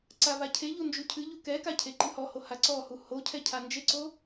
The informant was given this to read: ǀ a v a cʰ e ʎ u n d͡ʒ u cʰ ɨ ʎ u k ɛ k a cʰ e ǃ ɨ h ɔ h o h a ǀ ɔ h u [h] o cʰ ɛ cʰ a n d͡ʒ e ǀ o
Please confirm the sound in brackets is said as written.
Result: yes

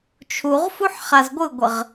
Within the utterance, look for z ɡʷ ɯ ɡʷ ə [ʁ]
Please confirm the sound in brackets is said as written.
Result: yes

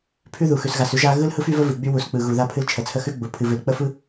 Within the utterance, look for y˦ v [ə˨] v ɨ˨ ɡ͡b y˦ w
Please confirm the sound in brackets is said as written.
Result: no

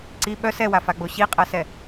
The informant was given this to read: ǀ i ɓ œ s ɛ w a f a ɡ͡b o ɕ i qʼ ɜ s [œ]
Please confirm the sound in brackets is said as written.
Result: no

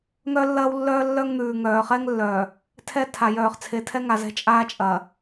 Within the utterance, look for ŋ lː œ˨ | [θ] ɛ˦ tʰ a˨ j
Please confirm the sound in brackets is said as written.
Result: no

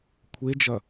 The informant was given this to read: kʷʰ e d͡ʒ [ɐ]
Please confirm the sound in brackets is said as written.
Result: yes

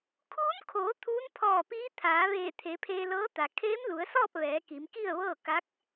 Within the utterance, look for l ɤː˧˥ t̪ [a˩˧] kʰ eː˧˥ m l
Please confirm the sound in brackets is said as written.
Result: no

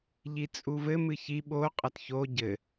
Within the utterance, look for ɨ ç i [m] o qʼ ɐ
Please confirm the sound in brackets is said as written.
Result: no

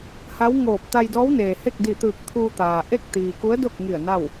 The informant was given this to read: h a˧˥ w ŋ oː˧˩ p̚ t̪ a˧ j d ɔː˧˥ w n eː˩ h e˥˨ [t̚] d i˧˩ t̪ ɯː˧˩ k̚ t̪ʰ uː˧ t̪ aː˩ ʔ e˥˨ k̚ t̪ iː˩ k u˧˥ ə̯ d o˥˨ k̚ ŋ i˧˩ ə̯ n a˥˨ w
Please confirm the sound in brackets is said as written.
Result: no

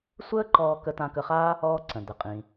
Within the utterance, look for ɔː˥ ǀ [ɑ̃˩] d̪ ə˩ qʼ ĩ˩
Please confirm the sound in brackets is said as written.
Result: no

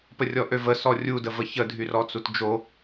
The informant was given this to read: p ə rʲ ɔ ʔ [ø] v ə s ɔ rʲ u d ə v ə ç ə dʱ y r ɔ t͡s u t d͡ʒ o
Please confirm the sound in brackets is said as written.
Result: yes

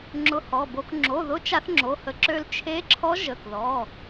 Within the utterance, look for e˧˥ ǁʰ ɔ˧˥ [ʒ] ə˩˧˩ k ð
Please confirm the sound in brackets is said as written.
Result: yes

